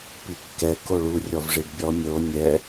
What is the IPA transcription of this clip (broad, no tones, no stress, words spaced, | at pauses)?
pikːɛ koɭu rʲɔvʐiɖbʲɔ mʲo nʲɛ